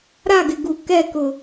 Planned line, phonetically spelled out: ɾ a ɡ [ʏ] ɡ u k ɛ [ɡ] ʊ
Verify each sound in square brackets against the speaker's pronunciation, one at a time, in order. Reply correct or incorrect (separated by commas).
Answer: incorrect, incorrect